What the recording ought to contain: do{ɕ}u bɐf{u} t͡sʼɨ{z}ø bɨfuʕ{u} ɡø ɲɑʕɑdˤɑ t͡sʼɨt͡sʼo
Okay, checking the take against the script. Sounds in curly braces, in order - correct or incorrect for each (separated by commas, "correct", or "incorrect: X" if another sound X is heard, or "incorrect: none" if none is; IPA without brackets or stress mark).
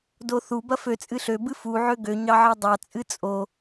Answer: incorrect: θ, incorrect: ø, incorrect: ɬ, incorrect: ø